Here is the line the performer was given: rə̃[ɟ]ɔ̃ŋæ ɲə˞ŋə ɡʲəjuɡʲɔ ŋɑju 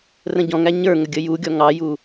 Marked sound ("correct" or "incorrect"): correct